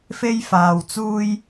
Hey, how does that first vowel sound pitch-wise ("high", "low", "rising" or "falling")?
high